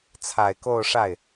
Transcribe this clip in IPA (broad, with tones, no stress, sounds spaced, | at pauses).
t͡sʰ a˨˩ ɪ̯ k o˥˧ ʊ̯ ʂ a˥˩ ɪ̯